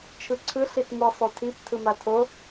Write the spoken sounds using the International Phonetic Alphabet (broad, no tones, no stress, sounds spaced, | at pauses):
t͡ʃʰ ɯ ǀʰ ɯ ɬ i t m ɯ sˤ o tʰ i p tʰ ɯ m a tʰ o